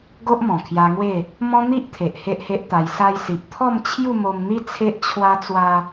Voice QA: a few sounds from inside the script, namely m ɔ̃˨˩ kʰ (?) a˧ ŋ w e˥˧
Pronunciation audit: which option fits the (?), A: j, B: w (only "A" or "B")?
A